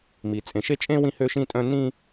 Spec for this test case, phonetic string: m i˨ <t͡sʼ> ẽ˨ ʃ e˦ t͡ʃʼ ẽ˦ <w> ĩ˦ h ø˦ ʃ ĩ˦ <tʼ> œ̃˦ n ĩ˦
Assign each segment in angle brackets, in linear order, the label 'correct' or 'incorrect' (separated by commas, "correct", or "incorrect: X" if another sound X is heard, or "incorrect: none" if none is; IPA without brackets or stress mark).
correct, correct, correct